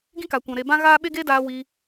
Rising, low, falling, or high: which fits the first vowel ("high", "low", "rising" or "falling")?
high